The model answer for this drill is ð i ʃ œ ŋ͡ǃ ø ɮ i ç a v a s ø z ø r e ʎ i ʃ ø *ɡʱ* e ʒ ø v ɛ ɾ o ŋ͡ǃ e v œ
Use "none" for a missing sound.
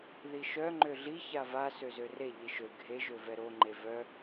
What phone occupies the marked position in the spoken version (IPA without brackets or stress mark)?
ɡʱ